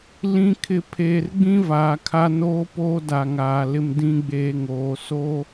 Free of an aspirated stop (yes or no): no